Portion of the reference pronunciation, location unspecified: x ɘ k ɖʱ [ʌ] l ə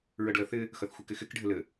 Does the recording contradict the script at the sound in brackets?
yes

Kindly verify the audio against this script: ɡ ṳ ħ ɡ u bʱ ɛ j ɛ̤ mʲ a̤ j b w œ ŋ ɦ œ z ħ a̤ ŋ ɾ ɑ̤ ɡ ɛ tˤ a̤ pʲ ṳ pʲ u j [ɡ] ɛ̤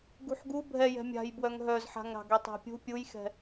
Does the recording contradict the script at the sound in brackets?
yes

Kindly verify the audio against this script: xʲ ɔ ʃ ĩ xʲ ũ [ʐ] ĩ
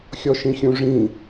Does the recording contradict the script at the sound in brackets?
no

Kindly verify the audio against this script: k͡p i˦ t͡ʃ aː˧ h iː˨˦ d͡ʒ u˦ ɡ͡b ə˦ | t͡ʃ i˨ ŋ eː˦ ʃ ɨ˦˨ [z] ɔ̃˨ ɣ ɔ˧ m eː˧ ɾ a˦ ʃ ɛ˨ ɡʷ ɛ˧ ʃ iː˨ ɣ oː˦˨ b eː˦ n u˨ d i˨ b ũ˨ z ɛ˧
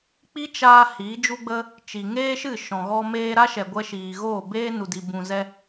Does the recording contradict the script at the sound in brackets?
yes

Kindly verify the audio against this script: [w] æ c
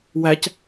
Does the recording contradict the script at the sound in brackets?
no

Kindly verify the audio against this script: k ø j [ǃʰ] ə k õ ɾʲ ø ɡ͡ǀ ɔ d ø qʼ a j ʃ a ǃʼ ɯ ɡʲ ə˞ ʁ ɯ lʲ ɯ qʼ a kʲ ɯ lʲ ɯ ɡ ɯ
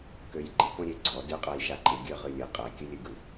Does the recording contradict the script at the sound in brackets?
yes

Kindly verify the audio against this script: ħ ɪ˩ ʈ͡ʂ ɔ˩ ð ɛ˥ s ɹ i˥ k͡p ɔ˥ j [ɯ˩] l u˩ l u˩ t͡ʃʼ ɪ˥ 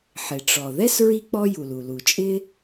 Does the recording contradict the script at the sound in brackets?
yes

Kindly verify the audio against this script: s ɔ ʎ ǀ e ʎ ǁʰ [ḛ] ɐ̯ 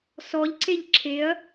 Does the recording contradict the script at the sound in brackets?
yes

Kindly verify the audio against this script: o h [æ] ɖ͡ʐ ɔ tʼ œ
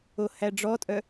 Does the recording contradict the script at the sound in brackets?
no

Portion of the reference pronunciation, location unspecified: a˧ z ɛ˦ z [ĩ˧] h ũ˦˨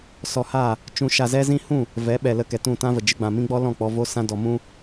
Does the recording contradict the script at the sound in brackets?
yes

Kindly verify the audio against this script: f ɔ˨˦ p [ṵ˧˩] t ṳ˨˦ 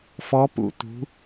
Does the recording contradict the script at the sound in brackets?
no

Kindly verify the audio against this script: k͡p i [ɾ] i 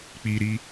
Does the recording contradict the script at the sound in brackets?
no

